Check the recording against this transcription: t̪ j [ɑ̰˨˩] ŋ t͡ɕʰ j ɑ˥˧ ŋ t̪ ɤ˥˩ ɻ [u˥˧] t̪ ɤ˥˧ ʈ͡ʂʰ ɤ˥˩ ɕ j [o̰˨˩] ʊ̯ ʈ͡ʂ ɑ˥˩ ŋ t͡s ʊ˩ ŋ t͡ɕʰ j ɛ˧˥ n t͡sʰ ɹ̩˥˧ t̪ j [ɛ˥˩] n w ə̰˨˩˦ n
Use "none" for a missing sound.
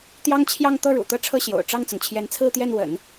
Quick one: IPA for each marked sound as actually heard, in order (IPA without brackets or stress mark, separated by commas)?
ɑ˥, ṵ˨˩, o̰˨˩, ɛ˥˩